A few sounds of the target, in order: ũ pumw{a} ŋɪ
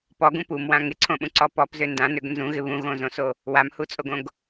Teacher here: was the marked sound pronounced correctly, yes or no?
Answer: no